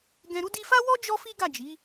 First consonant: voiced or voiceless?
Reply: voiced